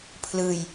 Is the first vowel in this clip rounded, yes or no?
no